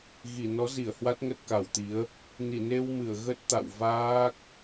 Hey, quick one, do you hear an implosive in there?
no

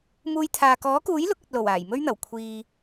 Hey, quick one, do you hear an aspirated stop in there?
yes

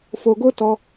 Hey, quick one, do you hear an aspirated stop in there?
no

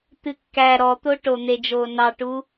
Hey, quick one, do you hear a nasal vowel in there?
no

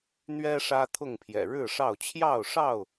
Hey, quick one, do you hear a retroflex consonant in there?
yes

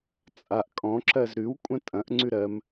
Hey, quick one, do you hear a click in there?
yes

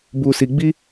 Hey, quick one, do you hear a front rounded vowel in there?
no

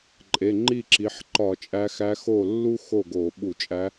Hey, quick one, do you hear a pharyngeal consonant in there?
yes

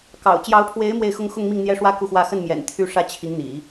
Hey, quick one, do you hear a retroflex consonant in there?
yes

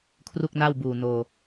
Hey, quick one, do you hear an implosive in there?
no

